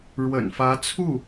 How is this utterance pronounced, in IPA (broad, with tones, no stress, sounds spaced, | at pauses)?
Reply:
ɻ w ə̰˨˩ n f ä˧˥ t͡sʰ u˥˩